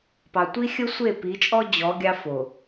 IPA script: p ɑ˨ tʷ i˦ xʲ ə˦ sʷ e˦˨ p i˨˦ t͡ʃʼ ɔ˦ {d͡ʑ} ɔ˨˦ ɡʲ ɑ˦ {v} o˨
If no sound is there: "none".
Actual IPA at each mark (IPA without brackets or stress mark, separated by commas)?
d͡ʑ, f